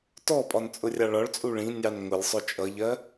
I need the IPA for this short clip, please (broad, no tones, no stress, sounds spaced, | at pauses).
t ɔ pʼ ɒ n t͡sʼ ʊ rʲ ɑ ɭ ɒ ɭ t͡sʼ u ɭ ĩ nʲ ɑ n ŋ ʊ lʲ sˤ ʊ t͡ʃʼ ʌ ʎ ɜ